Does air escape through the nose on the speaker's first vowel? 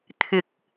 no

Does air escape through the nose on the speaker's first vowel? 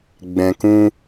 yes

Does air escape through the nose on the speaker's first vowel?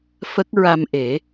no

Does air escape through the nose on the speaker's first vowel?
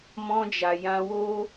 yes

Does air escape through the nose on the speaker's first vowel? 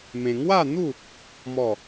yes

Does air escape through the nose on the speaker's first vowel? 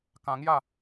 yes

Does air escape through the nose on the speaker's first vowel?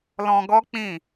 yes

